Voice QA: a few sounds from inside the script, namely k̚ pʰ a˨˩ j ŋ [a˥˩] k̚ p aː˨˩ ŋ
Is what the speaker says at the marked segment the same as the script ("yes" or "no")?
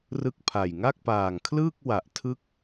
yes